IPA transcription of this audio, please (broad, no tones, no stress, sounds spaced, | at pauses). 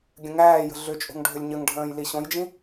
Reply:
ɡʲ ə̃ ŋ æː j ə̤ ɮ ʏ t͡ʃʼ o̤ ŋ ɖʱ ʏ lʲ ɲ ə ŋ ɖʱ ə̃ː j l i ɕ õ j d͡ʒ ĩ